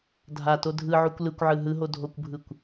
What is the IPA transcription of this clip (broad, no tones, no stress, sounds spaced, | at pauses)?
dʱ a t o dʱ ɯ ʕ u kʷ l ɯ kʷ ʕ ɯ ɦ ɯ ɦ o dʱ o kʷ bʱ ɯ kʷ